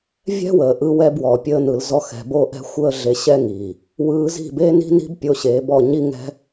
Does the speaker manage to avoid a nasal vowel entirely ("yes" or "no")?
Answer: yes